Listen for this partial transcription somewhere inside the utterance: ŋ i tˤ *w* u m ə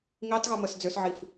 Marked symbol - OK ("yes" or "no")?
no